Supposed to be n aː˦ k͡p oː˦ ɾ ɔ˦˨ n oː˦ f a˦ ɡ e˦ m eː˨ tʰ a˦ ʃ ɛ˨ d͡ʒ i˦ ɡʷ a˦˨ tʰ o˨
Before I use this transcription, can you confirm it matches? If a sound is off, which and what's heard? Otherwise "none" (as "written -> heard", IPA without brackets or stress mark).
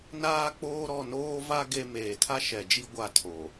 f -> v